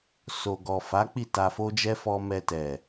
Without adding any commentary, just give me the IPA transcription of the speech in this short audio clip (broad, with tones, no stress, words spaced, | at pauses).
so˨ɡɔ˨ fa˨˦ k͡pi˦˨ta˧fo˦d͡ʒɛ˦ fɔ˧mɛ˧tɛ˨